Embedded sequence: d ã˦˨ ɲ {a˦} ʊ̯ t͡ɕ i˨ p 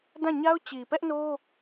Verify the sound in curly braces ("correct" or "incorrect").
correct